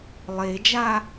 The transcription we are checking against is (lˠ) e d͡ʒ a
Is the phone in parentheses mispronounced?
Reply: no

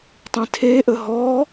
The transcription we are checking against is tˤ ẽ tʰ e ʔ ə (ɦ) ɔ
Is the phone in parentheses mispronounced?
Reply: no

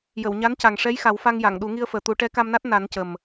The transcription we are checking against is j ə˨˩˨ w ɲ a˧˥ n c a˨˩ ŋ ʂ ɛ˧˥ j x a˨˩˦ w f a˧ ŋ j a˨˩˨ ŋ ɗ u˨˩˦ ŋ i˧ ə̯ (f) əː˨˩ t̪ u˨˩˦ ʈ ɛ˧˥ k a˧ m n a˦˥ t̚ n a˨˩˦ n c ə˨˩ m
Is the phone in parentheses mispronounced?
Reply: no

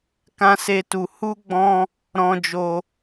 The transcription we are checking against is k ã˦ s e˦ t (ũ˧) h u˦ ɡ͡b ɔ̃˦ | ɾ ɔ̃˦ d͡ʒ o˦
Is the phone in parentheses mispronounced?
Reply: yes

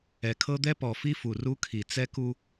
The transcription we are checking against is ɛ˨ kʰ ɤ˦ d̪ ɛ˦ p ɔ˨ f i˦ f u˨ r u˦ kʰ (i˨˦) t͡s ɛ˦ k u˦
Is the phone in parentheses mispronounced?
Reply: yes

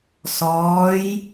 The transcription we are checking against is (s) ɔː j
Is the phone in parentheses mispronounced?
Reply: no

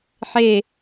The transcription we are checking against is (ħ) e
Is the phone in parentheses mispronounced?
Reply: no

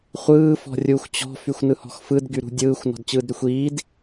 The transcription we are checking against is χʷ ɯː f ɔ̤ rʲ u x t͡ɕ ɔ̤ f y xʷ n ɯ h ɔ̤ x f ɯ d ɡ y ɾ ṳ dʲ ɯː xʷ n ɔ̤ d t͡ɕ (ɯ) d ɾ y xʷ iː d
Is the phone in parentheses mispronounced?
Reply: yes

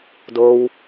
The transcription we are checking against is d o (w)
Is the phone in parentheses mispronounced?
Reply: no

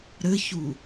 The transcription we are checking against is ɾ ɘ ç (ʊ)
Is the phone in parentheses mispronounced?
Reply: yes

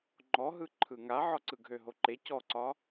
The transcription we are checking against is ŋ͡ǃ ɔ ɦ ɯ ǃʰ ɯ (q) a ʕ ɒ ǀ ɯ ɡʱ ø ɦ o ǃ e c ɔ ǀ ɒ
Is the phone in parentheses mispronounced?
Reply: yes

